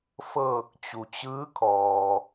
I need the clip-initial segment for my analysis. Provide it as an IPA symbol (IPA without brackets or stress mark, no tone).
f